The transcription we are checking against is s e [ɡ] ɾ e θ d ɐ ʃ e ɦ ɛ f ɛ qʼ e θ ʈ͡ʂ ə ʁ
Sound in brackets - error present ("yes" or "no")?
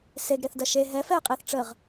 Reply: no